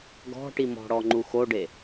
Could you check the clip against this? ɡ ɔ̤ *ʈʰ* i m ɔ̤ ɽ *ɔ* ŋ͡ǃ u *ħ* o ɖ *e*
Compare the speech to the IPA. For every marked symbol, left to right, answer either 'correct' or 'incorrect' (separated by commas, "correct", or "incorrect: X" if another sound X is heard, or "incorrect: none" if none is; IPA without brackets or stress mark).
incorrect: ʈ, correct, incorrect: x, correct